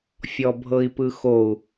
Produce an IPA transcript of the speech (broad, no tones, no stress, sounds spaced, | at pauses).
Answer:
fʲ ɔ bʱ ɤ i̯ p ɯ x o u̯